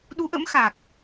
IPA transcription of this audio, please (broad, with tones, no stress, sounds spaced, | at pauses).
ɗ u˨˦ ʔ ə̰˧˥ m x a˨˩ k̚